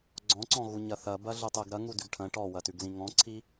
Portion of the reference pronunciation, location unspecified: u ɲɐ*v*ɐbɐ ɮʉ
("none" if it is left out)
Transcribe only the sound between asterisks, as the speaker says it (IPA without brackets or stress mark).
θ